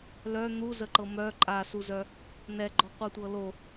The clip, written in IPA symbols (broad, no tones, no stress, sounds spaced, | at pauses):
l œ n̪ u z ə ǃ ɤ m œ ǃʼ a s u z œ | n ɛ ɡ͡ǃ ɔ qʷ ɤ tʷ ɤ l o